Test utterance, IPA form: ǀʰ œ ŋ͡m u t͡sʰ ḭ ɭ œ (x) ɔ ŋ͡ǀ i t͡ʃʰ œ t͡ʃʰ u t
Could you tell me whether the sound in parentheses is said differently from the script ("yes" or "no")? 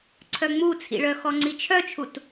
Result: no